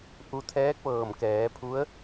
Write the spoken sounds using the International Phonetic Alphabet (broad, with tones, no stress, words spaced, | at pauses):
ʔu˧t̪ʰɛː˧˥k̚ʋɤː˧˩m kɛː˩˧pʰu˧˥ə̯